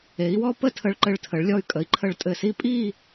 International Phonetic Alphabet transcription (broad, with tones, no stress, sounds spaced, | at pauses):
e˩˧ i̯ w ɔ˥˧ p ə˥˧ tʰ ə˧ ɭ ǃ ɘ˧˩ ɭ tʰ ə˩˧ ɭ lʲ ɔ˧ y̯ kʼ ə˩˧ i̯ ǃʰ ə˧˩ ɭ tʼ ɘ˧˩ s i˥ pʼ i˥˧